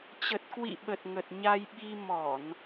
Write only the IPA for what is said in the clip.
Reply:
t͡ɕə˨˩t̚kwḭ˧˨ɓə˨˩t̚ ŋə˨˩t̚ ɲa˧jɓi˧ mɔ˧˩˨n

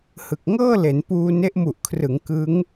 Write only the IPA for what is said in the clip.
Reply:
hɯ˨˩k̚ŋɤː˥˩le˩˦n puː˧ne˦˥ʔ mu˨˩ʔkʰrɯ˩˦ŋ kɯ˦˥ŋ

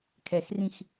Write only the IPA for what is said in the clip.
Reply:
kʰɛxrĩx

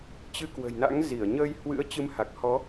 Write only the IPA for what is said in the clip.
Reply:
t͡ɕɨ˨˦kwə̤˨˩jna̰˧˥ŋ zi˧˩ə̯ɲə˧j hwɨ̰˧˥ə̯t͡ɕɨ˨˦mha˨˩k̚ hɔ˨˦

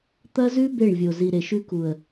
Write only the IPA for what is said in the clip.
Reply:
t̪ɐ˦zʉ˦ be˦˨ɳvʲo˨ zi˨ɾe˨ʃʉ˦ ku˨ə̯

